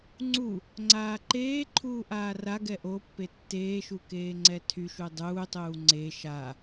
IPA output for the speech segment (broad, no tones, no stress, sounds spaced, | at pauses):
ŋ͡ǀ u | ŋ͡ǀ aː ǃ eː ǃʰ uː ʔ aː r a ɡ ɛ ʔ o pː e tː eː ʃ u k eː ŋ͡ǀ ɛ tʰ y ʃ u dˤ uː tˤ uː ŋ͡ǀ e ʃ a